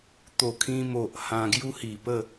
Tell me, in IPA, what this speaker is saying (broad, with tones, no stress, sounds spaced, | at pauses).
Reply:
t̪ o˨˩ kʰ ĩ˧ m o˨ ʔ h ã˧ ɡ j u˦ h i˨˩ p ə˥˧